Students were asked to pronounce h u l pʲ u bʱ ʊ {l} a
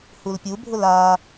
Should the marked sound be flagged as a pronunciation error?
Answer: no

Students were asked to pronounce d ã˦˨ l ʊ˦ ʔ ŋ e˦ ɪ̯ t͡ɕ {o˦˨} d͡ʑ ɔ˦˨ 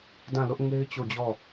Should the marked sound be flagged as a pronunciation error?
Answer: no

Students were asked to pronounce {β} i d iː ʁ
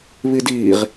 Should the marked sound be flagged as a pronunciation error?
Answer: no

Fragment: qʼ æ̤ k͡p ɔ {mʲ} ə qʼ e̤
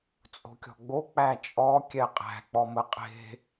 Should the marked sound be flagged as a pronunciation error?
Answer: yes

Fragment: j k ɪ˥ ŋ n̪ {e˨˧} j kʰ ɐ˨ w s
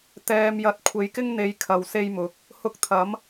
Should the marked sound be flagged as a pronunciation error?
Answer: no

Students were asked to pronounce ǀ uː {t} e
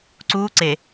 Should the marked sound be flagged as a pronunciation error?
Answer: yes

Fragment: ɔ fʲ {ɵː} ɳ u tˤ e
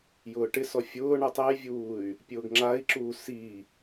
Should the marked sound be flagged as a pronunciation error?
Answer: yes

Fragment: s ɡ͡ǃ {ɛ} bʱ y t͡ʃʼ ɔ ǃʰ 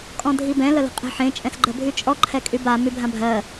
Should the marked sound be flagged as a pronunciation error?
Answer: yes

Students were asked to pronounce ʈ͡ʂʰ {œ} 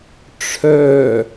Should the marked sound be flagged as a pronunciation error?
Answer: no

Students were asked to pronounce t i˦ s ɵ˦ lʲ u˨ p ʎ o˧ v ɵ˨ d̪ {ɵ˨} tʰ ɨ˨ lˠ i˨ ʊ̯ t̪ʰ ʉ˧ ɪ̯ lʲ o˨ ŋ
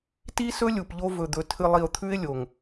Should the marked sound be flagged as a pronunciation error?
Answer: no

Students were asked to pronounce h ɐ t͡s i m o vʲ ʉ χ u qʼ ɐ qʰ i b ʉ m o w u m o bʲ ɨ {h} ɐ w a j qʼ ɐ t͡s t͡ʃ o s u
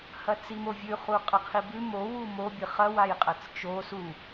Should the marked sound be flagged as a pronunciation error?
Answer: yes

